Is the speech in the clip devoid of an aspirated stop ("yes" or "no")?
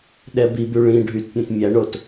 yes